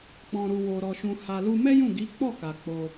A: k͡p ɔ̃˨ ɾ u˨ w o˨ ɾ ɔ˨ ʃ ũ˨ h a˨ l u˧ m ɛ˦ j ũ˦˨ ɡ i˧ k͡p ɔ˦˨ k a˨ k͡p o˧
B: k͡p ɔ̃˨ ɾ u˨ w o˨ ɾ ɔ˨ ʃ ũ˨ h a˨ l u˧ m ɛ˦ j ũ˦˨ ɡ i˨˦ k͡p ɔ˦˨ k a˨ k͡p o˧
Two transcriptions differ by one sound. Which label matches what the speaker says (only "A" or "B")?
B